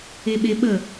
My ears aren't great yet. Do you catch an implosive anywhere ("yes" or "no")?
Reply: yes